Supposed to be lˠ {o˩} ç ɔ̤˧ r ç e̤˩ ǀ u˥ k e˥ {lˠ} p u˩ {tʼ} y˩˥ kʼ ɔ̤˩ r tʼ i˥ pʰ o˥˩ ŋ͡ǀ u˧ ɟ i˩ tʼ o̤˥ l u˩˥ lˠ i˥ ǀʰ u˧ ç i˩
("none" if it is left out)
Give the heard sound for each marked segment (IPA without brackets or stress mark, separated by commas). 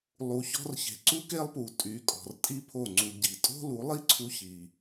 u˩, lˠ, tʼ